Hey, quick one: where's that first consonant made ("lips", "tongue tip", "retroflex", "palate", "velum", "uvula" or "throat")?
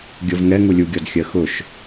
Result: velum